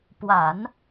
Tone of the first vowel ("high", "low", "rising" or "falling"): low